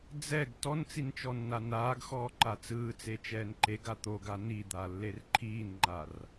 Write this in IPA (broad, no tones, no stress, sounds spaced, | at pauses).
d͡z ɛ ɡ t ɔ n t͡s i n t͡ʃ ɔ nː a n aː ɡ x ɔː ǃ a t͡s ɯː t͡s e t͡ʃ ɛː n ǃ e ɡ a t̪ o ɡ a n i d̪ a lː e r ǃʰ iː n ŋ͡ǃ a r